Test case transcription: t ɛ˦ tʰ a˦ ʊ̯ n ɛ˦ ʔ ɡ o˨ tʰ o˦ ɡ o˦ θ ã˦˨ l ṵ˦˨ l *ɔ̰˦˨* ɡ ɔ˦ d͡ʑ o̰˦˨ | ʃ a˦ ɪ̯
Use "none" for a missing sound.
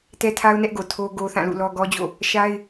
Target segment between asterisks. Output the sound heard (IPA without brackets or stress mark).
ɔ˦